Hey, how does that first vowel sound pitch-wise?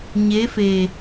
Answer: rising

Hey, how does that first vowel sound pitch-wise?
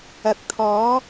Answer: rising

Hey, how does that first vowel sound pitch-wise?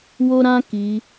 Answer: high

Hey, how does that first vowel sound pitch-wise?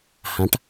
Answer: rising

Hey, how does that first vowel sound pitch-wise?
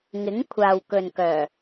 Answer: rising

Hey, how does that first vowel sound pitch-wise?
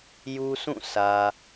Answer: high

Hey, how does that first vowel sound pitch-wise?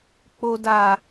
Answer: low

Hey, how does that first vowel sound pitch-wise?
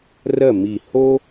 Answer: falling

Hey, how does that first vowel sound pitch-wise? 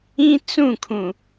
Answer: high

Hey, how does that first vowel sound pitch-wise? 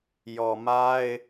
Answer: low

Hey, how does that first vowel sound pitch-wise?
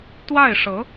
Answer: falling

